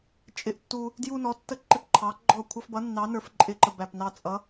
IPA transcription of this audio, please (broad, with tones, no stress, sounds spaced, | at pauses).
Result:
t͡ʃʼ ɪ˦ ʔ tː u˦ | d j u˦ n ɔ˨˥ tː ə˦ ǃ ɪ˦ p ǃʰ ɑ˨˥ ɡ͡ǃ ɔ˥˩ kʷʰ ʌ˦ f b ʌ˨˥ nː ɑ˨˥ n ə˞˨˥ f ǃʼ ɪ˥˩ ǃ ə˥˩ b æ˥˩ p n ɑ˦ t͡sʼ ʌ˨˥